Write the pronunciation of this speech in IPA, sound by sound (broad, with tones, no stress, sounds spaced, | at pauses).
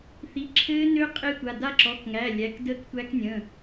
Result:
θ i˩˧˩ ǁʰ ɘː˦˥ n ø˦˥ qʼ e˦˥ tʷ a˩˧˩ d a˦˥ ǁ ɔ˩˧˩ k ŋ æ˩˧˩ lʲ æ˩˧˩ k d əː˦˥ k tʷ æ˦˥ k nʲ ə̃˩˧˩